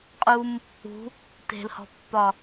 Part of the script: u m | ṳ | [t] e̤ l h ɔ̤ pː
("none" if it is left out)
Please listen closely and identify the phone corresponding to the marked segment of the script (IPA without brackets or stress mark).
t